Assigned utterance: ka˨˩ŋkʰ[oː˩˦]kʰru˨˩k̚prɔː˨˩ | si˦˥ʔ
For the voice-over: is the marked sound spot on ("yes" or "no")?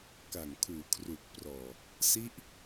no